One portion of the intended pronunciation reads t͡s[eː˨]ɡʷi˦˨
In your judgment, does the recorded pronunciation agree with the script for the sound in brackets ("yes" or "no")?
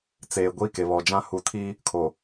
yes